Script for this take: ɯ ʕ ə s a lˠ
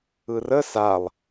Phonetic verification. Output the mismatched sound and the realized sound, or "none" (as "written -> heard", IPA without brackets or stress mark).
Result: ʕ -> r